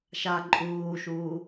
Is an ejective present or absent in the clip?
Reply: present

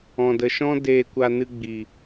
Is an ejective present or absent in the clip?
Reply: absent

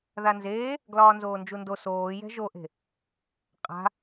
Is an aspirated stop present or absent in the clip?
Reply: absent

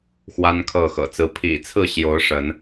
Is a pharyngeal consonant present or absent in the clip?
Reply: absent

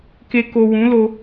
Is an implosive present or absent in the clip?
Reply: absent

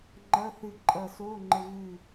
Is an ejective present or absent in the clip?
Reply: present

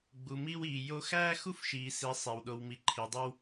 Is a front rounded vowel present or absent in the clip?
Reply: absent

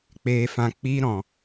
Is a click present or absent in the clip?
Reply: absent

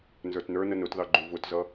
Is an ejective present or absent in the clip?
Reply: absent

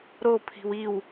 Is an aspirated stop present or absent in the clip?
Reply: present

